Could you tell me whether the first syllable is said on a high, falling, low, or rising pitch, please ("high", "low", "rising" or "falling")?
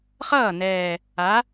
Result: falling